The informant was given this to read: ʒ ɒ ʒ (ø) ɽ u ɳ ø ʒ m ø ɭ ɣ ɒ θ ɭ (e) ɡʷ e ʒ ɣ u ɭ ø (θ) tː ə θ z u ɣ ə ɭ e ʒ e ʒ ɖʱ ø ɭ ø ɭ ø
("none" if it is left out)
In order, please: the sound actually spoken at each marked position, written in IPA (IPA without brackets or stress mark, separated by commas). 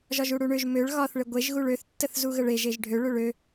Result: u, e, θ